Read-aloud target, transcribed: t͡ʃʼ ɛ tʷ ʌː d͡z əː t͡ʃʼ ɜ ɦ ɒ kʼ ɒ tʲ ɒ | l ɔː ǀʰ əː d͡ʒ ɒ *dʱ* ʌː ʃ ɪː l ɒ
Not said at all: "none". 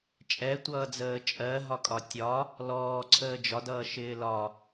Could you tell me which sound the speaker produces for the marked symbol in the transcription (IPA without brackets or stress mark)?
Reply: d